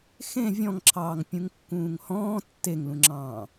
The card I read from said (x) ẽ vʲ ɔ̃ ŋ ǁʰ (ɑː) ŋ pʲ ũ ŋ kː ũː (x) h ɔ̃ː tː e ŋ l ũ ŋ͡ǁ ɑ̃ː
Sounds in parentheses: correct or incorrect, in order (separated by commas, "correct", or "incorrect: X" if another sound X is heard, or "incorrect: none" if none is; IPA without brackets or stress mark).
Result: correct, correct, incorrect: ŋ